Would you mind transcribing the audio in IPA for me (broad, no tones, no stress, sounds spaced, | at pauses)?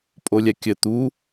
pʼ o lʲ ɛ kʲ ɘ t̪ u